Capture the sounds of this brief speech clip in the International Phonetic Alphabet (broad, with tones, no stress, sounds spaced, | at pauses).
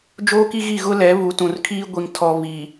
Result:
d͡ʒ oː˦ k i˦ ɣ i˦˨ ɣ ʊ˦ l ɛ˨˦ β u˨˦ t ũ˨ r kʰ iː˦ ɡʷ i˨ ŋ tʰ ɔ˨ β i˨